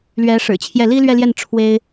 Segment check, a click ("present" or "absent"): absent